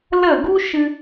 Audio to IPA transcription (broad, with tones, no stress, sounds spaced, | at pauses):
l ə˦˨ ɡ u˦ ʃ ɨ˧